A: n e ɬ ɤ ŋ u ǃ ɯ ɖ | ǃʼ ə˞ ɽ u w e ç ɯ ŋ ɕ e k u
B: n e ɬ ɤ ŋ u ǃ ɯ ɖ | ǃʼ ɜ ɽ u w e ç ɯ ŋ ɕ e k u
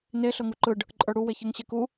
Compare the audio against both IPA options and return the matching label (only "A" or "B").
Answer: A